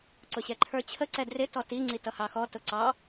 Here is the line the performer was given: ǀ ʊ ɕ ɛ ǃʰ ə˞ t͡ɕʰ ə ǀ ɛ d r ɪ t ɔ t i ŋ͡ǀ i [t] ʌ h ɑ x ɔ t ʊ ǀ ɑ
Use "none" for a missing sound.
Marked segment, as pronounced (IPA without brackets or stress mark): t